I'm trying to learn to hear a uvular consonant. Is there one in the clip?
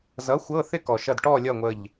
no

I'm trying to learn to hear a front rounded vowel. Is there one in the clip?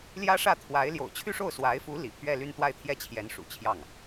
yes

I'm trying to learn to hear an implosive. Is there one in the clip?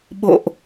yes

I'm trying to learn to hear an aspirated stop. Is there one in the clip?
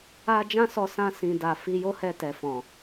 no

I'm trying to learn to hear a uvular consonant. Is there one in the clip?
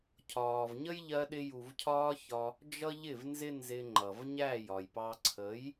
no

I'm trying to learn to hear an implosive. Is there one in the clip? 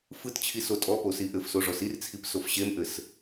no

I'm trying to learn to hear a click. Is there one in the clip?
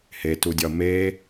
no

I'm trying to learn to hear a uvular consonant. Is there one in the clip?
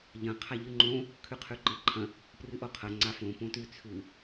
yes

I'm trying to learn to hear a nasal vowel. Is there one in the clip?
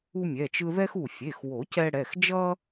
no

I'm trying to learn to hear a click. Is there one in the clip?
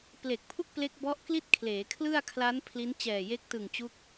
no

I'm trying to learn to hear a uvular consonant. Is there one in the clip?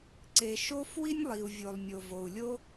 no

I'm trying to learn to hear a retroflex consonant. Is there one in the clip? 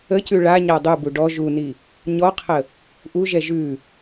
yes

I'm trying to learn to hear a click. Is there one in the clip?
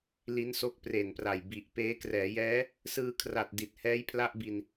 no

